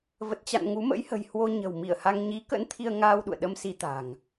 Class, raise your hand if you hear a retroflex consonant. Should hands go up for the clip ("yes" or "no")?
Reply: no